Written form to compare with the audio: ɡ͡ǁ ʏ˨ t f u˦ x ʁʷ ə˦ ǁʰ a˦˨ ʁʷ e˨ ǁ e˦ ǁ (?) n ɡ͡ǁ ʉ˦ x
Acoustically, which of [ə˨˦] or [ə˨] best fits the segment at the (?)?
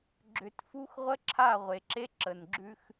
ə˨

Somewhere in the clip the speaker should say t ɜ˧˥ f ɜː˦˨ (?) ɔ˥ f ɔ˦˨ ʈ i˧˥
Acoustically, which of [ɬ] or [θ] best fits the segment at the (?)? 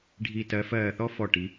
θ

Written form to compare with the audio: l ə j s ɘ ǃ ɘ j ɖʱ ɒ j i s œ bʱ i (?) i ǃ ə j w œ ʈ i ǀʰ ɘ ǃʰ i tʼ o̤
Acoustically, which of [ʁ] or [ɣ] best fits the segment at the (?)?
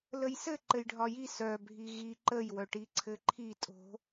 ɣ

